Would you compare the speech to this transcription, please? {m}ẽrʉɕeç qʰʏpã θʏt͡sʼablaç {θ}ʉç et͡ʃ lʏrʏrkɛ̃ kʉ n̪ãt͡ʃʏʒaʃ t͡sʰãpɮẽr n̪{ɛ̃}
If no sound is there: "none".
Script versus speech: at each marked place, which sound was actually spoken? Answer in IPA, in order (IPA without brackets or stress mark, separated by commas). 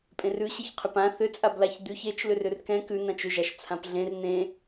pʼ, d̪, ẽ